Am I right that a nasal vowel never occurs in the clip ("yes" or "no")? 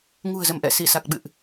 yes